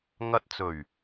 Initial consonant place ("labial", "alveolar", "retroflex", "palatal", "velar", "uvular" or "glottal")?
velar